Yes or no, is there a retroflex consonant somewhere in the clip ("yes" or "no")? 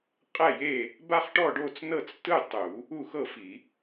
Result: yes